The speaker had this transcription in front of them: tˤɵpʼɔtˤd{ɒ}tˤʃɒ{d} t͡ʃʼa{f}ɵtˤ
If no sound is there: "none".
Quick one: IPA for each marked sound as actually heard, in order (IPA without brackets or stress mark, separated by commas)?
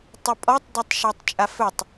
ɒ, tˤ, f